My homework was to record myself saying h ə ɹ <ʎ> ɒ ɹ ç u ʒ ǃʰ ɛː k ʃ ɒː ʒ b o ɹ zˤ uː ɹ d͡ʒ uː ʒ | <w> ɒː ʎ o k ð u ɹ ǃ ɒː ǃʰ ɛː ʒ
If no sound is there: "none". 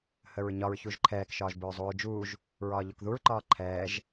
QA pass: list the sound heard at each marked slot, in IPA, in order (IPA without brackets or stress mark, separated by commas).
ɲ, ɹ